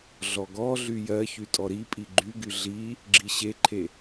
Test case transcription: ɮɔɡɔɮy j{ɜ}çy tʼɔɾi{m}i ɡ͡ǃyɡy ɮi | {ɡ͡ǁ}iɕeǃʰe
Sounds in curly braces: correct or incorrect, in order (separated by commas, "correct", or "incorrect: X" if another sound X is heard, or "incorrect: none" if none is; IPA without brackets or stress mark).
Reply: correct, incorrect: pʼ, correct